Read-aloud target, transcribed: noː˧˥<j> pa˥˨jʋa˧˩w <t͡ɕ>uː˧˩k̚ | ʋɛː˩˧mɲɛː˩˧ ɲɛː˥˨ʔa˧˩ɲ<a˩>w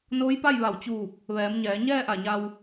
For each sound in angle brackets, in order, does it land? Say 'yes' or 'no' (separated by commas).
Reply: yes, yes, no